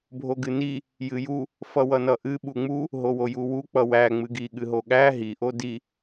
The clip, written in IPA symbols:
bʱ o ɡ ɨ n i | j ɨ j u | f ʌ w ʌ n ʌ ʔ ɨ ɓ u ŋ͡m u | ɦ o w o j u w u k͡p ʌ w æ ŋ͡m ɨ ɡ i ɠ ɨ ɦ o ɠ æ ɦ i ʔ o d i

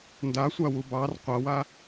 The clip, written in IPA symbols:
n d a sʷ a w u b ɑ r qʷ a w a

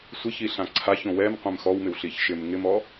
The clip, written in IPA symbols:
sʷ ɪ ç i ɬ ã ǀʰ a ç õ w ɛ m qʷ ɛ̃ m x ɔ w m ɪ w ɬ i ç ʃ ɪ m ŋ ɪ m ɔ

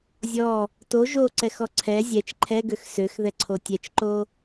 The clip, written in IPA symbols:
zʲ ɔ | t o ʒ o ǀ ɛ x ɔ ǀʰ ɛ zʲ ɛ t͡ʃ ǃʰ ɛ ɡ ø x s ø x ð ɛ ǀʰ o tʲ ɛ t͡ʃ ǃ o

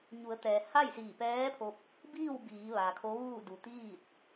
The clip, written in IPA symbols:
ɲ u˩˧ ə̯ t̪ ɛː˩ h a˥˨ j s iː˧˩ p ɛː˧˥ pʰ o˧ p̚ | b iː˥˨ w b iː˩˧ ʋ a˩ kʰ o˧˥ ʋ uː˥˨ d u˩ t̪ iː˥˨ t̚

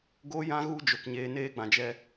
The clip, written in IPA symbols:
ɡ o˧ j ã˧ ɣ u˧ d͡ʒ o˨ k ɲ eː˦ n eː˦ ɡ͡b ã˨ d͡ʒ ɛ˦

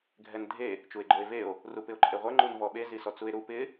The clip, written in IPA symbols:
ɡʱ ɛ n dʱ e | t͡ʃ u e̯ ɡ͡ǃ o e̯ v e o̯ | r u p ɪ o̯ ǃʼ e ʁʷ ɛ ŋ͡ǃ u n v ɔ ɓ e z i s ɔ t͡s u e̯ ɾ u p ɪ

